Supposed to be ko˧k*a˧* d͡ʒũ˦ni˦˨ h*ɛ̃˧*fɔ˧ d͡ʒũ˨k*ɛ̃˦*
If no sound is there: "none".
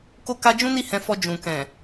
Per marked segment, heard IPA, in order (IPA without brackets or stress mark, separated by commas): a˧, ɛ̃˧, ɛ̃˨